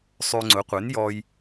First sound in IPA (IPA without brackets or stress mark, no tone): sˤ